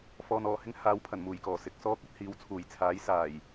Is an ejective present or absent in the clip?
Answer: absent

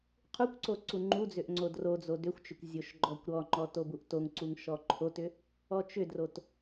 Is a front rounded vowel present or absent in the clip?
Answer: present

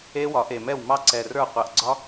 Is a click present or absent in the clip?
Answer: present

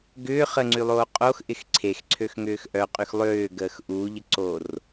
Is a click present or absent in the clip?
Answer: present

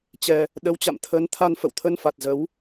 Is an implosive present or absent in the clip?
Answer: present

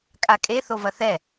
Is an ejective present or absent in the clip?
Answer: present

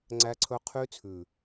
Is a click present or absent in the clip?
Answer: present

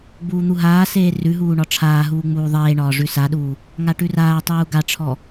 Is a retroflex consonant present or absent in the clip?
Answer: present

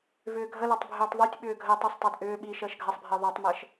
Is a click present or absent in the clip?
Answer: absent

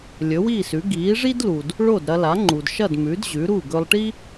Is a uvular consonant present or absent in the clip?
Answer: absent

